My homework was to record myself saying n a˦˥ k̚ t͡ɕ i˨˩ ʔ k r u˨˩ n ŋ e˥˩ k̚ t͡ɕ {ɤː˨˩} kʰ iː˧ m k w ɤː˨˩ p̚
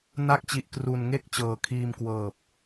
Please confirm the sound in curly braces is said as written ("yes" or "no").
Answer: yes